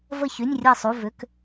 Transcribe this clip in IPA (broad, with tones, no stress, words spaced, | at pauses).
və˥˨çy˧˥˧nʲrʲɤ˥˨sˤu˧˥˧ vʏ˧˥˧k